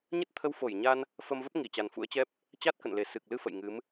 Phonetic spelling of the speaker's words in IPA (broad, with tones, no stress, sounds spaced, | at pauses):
ɲ ə˦˥ t̚ t̪ʰ ə˧ w f o˧˩ j ɲ a˧ n | f ə˧ m v ə˦˥ p̚ ŋ i˧˩ t͡ɕ a˨˩ n f ṵ˧˥ ə̯ t͡ɕ ɛ˦˥ p̚ | t͡ɕ a˦˥ t̚ k ə̰˧˨ n l e˧˩ s ɨ˨˩ k̚ l ɨ˧ f ə̰˧˨ j ŋ ɨ˨˦ m